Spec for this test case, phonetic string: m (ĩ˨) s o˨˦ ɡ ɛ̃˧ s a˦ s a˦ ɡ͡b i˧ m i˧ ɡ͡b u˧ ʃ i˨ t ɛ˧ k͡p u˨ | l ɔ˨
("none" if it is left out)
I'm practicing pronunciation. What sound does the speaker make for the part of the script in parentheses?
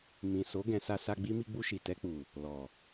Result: ĩ˨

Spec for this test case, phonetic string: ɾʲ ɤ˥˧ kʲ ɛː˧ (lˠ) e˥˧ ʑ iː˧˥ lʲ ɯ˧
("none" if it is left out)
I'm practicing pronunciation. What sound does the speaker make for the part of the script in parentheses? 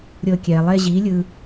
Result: lˠ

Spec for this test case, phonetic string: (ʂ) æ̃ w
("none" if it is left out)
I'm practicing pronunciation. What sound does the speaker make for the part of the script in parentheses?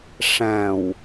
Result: ʂ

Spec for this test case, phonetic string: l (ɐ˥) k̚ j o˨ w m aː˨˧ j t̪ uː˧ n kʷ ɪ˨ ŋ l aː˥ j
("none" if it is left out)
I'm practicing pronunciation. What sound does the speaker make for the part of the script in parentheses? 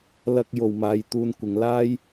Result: ɐ˥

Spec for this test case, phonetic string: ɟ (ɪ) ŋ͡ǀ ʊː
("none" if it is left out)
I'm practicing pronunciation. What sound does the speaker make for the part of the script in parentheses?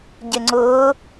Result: ɪ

